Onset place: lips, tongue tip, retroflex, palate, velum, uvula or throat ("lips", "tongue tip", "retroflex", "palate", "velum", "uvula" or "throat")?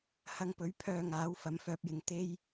throat